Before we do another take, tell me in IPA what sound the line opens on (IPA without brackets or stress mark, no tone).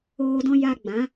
oː